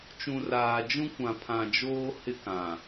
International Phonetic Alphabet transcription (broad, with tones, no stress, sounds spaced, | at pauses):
t͡ʃ ũ˨ r aː˨ d͡ʒ ũ˦ kʷ ã˨ pʰ ã˨ d͡ʒ oː˦ h ɪ˦ k ã˨